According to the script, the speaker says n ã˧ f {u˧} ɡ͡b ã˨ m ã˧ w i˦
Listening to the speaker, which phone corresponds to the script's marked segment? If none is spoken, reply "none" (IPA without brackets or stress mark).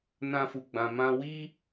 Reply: u˨